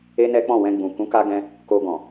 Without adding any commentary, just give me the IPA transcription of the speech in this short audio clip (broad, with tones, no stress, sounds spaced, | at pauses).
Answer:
e˦ n ɛ˦ k͡p ɔ̃˦˨ w ɛ̃˧ ɡ͡b ũ˨ k ũ˨˦ k a˧ ɡ ɛ̃˧ | k o˧ ɡ ɔ̃˨